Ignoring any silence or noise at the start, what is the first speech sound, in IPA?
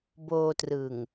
b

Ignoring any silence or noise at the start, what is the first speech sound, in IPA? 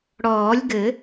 ɽ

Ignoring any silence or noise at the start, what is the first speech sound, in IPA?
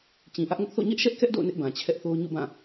t͡ɕ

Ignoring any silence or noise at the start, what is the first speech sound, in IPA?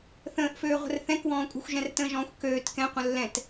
θ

